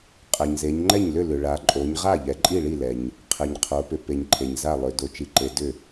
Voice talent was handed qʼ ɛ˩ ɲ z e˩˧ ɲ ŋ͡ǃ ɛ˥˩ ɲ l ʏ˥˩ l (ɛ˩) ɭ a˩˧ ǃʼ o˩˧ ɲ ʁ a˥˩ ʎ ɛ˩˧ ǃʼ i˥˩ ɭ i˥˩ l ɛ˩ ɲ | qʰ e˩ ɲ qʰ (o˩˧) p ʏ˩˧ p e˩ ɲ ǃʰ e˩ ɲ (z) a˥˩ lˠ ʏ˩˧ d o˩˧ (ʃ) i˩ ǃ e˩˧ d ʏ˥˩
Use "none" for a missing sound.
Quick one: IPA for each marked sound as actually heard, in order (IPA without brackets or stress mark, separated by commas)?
ʏ˩, o˩˧, z, t͡ʃ